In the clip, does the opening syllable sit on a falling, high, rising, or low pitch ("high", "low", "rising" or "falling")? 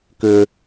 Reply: low